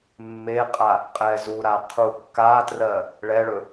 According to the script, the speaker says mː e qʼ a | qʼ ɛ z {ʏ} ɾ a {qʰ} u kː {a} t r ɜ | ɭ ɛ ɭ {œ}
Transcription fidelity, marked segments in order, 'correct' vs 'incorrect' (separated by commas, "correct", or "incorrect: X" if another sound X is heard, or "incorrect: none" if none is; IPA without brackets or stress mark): incorrect: u, correct, correct, incorrect: ɵ